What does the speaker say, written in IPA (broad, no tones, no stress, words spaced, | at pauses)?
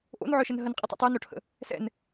ʔo̰nʕœʃən ɦənqʼitˤḭ tˤœnoʈʰə̰ | sɛ̰n